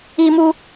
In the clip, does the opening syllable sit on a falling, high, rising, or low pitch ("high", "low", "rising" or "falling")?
high